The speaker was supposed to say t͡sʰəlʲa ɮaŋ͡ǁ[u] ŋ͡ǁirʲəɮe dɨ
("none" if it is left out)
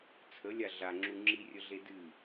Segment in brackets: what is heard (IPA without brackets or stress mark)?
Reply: u